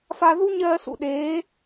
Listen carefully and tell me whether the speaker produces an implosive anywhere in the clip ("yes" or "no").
yes